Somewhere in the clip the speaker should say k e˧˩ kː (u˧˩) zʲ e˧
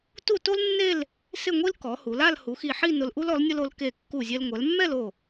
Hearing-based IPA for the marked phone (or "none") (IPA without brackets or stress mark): u˧˩